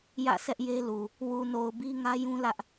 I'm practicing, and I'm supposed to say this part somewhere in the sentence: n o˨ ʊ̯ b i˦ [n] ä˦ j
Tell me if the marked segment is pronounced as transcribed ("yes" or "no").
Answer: no